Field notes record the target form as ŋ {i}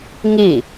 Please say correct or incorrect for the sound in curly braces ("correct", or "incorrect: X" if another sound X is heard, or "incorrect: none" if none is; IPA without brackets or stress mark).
correct